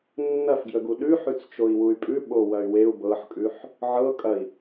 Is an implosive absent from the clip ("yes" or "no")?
no